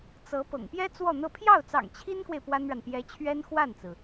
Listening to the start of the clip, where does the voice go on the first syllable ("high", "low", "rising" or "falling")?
rising